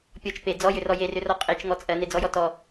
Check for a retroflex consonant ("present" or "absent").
absent